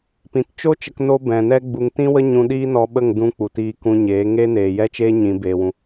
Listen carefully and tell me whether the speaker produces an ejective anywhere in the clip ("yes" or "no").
no